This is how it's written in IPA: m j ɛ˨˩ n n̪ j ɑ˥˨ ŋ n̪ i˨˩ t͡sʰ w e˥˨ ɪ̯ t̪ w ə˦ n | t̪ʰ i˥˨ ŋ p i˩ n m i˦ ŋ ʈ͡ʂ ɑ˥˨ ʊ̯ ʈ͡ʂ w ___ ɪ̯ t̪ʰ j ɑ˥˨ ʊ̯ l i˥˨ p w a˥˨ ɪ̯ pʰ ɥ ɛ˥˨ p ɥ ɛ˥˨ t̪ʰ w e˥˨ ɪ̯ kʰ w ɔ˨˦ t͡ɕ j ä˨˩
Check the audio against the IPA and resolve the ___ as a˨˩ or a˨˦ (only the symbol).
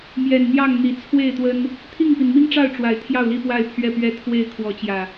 a˨˦